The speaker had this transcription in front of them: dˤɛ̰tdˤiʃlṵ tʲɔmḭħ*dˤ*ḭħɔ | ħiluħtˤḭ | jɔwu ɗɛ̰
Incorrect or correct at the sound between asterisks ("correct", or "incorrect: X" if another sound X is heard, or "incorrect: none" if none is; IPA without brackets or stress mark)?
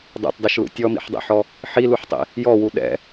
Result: correct